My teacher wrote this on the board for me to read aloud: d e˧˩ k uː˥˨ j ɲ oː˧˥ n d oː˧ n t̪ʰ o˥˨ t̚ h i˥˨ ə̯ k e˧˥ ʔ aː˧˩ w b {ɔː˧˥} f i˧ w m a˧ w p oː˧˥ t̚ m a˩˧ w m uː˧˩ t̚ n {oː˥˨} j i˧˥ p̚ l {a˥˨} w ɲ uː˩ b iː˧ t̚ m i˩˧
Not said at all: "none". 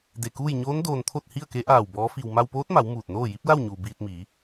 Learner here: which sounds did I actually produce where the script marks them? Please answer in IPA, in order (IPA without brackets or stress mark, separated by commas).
ɔː˧˥, oː˥˨, a˥˨